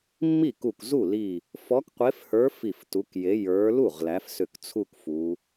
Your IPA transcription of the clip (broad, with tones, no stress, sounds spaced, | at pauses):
mː i˥˩ k u˧˩ k z u˥˩ l i˧˩ | f ɔ˨˦ k qʷ e˨˦ f h ə˞˨˦ f i˧˩ f t u˨˦ k j e˨˦ j ə˞˨˦ l u˥˩ ʁ l æ˨˦ f s ʏ˧˩ k t͡sʰ u˥˧ k f u˨˦